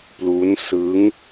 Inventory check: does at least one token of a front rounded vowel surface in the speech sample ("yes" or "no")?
no